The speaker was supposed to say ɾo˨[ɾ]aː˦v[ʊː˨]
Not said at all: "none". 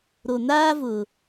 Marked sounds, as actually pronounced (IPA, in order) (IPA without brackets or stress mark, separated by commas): n, ʊː˨